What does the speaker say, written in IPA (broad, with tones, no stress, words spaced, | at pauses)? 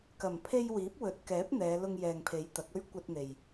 kɐ˨˩mpʰe˧j wiː˨˥p̚wɵ˨˥t̚kɛː˨˥p̚ n̪ɛː˨˧ lʊ˧ŋjɛː˨ŋpʰe˨˥j t̪ɐ˨˥k̚ɵ˥ɥ kʷɐ˧t̚n̪e˨j